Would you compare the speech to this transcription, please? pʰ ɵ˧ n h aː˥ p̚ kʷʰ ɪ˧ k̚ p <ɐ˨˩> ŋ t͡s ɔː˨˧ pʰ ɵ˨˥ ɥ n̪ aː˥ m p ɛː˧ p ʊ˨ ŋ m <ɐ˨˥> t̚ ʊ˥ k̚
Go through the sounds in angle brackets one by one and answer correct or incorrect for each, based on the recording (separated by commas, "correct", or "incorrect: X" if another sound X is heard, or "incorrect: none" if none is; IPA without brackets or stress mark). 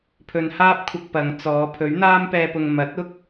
incorrect: ɐ˨˧, correct